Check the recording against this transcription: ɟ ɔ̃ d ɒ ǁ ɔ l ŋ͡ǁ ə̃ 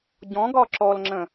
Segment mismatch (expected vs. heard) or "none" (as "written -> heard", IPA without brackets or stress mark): d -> ɡ